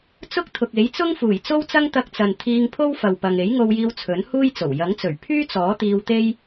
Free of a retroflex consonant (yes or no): yes